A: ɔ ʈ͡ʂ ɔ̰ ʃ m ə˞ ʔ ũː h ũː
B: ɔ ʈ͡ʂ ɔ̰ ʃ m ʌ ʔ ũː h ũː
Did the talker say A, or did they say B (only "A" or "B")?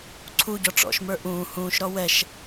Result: A